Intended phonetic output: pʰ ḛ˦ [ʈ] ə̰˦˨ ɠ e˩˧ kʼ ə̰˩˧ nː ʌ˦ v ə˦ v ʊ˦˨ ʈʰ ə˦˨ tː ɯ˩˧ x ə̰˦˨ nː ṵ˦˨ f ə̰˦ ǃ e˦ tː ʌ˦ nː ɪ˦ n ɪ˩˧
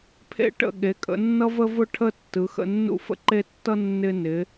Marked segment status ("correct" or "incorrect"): correct